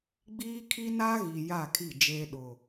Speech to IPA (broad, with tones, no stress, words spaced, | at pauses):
ɡ͡biː˦kʰi˦ na˦ɣi˨ ja˦˨kʰi˦˨d͡ʒeː˦ ɗʊ˨